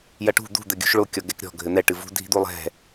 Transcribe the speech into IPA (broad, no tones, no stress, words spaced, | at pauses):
jɐʈṳ d̪ṳ d̪ɘɡʲṳʃɭo kʲɔɡɛkɾʲɔ̤ ɡʱɘn̪ɛ ʈɨvṳ dʱi̤d̪ulˠɛ̤